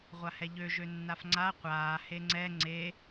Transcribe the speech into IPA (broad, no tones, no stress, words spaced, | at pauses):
ʁʷahɛʎø ʒønːafŋ͡ǀa qʷaː heŋ͡ǀɛ ŋ͡ǀe